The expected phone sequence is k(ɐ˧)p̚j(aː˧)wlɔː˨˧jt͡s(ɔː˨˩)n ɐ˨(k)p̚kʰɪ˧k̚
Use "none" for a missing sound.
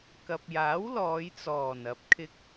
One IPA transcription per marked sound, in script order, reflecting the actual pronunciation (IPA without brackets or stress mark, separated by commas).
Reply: ɐ˨, aː˨˥, ɔː˨˩, none